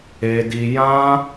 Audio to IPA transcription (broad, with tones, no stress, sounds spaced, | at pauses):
e˧ d i˧ j ã˦